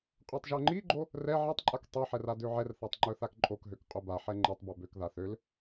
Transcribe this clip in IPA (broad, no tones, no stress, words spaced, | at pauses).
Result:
qʼøtˤʒœŋ͡ǃiɡ͡ǃo | rɛ ʕatˤǃʼak tˤøħɛr adøʕɛrθatˤ ŋ͡ǃœθakǃʼokɦøk qʼobaħɛ ŋ͡ǃɛtˤbœ bøkða θøl